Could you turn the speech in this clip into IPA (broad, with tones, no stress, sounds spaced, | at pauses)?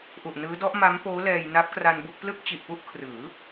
ʔ u˨˩ ʔ n ɯː˦˥ d ɔ˦˥ ʔ m a˦˥ m p oː˦˥ l ɛː˧ j n a˦˥ p̚ k r a˧ n b u˥˩ k̚ p l ɯ˥˩ k̚ t͡ɕ i˨˩ ʔ p u˥˩ ʔ kʰ r ɯː˩˦